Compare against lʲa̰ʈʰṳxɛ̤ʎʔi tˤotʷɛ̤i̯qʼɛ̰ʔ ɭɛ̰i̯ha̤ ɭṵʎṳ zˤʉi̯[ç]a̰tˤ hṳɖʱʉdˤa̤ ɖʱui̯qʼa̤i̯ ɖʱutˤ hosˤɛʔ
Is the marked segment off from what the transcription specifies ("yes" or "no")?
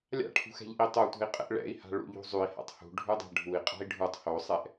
yes